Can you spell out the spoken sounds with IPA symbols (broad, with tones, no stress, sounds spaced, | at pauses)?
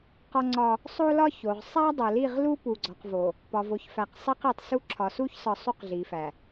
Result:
q ɒ˦ ŋ͡ǀ ɒ˦ | sˤ o˦ l ɒ˦ ç o˨ ʁ sˤ æ˦ dˤ o˨ l i˦˨ ʁ l u˦ p u˨ ɡ͡ǀ ɒ˨ q v o˨ | p ɒ˨ v o˨ ç f æ˨ q sˤ i˦ q i˨ tˤ s u˦ ǁʰ ɒ˨ s u˦ ç s ɒ˨ sˤ u˦ q ɮ i˨ f æ˨